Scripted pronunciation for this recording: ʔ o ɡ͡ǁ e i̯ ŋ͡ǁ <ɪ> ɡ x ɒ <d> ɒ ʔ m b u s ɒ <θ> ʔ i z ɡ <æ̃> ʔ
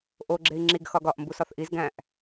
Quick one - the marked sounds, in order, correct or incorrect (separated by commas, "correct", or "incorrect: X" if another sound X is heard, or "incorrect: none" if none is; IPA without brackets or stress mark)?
incorrect: i, incorrect: ɡ, correct, correct